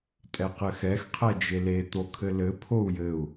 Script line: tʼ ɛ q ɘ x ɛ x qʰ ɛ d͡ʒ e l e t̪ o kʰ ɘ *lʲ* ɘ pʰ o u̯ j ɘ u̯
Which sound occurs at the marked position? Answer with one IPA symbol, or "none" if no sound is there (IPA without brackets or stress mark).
l